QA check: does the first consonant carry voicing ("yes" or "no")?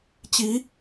no